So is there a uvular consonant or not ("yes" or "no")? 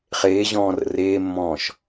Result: yes